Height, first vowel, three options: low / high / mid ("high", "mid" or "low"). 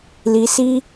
high